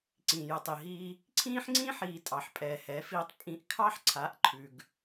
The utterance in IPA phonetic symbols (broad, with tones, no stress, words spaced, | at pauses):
ǀĩː˨jə˨tˤi˨ɦiː˦ | ǀʰĩː˦ħŋ͡ǀĩː˦ħiː˨ tʼɑ˨ħpʼɛː˨hɛ˨˦fiː˧tˤ pʼĩ˧ʔ kʰɑ˦ħǀʰa˨˦ʔ ǃʰʉ˨ɡ